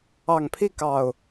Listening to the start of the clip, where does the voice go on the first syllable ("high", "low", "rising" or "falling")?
low